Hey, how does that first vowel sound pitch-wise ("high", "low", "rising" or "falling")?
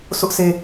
high